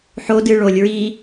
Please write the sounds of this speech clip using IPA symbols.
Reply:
ħodɨ ɭolʲ ɹi

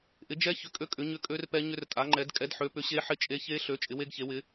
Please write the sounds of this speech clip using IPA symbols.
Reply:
ʔɪ˨˥d͡ʒɛ˦˥ çʏ˨˥kʼø˦˥ kʼʏ˨˥ɲʏ˦˥kʼø˦˥rpɛ˦˥ ɲʏ˦˥rtʼa˨˥ŋ͡ǃɛ˨˥d kʼɛ˨˥d ħø˨˥pʏ˨˥ɕe˦˥ ħɪ˦˥t͡ʃʼe˦˥ çe˦˥ɬø˨˥ t͡ʃʼɪ˨˥we˦˥ɡçe˨˥wɪ˨˥

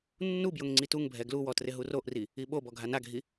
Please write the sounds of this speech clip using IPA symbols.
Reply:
nːubjʊŋ ŋ͡ǀituŋbʱɛ ɡluwɔ trɪɦuroʔri | iɓobɔ ɡʱanaɡʱi

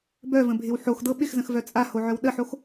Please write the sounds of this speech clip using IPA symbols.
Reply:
bœvə̃bʱɪw ħoxdɤ ɓɪxzə̃xvœ t͡sʼahoʕœw ɗəħox

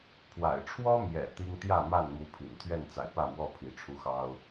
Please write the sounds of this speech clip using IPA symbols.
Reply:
pʰwa̰˨˩ɪ̯ʈ͡ʂʰwɔ˦mjɛ̰˨˩ t̪i˦ŋ t̪jä˥˨ma˥˨nmu˨˦ pʰḭ˨˩n t̪ʰɥɛ˥˨nt͡sa̰˨˩ɪ̯pä˥˨mwɔ˥˨ pʰi˨˦ʈ͡ʂʰu˦xɑ˦ʊ̯

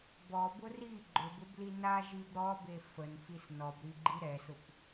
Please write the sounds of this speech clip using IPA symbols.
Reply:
bɔbʊ ri ɡ͡ǃʊbʊbli naʒib ɾɔbe fənfis nɔbɾiɡ͡ǃi ɾɛsʊp

